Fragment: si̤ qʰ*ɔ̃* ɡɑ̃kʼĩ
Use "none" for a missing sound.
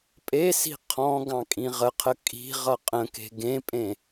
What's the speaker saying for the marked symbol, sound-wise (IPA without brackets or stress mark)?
ɔ̃